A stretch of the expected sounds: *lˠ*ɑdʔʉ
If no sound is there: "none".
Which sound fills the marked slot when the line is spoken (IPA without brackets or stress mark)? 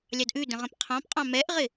lʲ